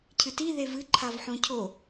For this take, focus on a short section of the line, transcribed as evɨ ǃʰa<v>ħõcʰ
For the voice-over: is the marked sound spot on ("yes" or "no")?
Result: yes